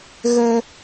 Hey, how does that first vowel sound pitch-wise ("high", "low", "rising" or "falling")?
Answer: high